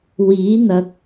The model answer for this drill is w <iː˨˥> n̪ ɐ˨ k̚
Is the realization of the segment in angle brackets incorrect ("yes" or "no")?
no